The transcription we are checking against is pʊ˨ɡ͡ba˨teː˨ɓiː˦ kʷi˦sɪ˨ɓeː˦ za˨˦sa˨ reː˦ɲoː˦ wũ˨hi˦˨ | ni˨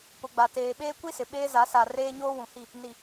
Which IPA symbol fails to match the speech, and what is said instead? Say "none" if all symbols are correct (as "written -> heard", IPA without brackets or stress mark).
iː˦ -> eː˦